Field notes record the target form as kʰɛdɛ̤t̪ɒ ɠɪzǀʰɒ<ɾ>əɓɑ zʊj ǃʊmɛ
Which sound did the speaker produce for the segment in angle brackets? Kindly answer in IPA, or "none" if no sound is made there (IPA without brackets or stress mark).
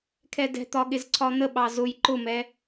n̪